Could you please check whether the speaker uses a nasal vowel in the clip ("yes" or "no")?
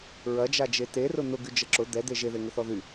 no